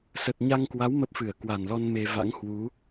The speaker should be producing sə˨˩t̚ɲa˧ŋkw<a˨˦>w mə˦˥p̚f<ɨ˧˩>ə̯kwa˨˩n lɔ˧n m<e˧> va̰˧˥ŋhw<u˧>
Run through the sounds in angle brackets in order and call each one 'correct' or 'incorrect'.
correct, correct, correct, incorrect

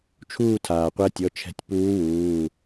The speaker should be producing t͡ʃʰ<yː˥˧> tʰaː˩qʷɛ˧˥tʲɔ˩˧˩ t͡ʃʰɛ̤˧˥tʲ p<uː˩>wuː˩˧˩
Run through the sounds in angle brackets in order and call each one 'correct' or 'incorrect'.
incorrect, incorrect

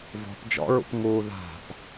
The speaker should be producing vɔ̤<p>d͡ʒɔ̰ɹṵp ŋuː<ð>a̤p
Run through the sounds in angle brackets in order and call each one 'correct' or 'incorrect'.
correct, correct

